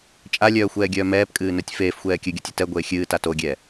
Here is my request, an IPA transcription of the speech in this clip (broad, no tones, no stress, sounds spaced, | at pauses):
t͡ʃʼ a lʲ œː xʷ ɛː ɡʲ œː m ɛː p kʼ ɨː n œ tʲ f eː f xʷ ɛː kʲ ɨ ɡʲ o tʲ ɨ t ɛ ɡʷ eː xʲ ɨː t a t o ɡʲ ɛ